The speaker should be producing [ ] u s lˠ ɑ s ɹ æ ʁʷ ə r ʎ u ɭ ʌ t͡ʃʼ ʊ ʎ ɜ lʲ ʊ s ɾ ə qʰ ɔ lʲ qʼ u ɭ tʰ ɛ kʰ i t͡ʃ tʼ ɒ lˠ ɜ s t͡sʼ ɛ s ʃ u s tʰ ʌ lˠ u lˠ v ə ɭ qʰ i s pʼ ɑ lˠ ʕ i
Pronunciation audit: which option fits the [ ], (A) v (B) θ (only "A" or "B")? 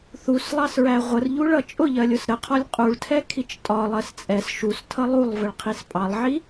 B